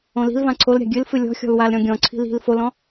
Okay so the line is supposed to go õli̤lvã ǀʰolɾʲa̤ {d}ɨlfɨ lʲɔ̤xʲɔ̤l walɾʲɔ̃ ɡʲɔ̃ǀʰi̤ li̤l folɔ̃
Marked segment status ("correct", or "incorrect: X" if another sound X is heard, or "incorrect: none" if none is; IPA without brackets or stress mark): incorrect: ɡʲ